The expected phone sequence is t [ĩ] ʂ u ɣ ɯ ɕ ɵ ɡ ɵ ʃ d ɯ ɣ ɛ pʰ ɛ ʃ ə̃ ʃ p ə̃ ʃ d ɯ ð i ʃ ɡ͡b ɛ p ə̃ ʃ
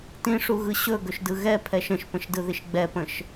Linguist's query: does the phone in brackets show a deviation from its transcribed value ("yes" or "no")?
no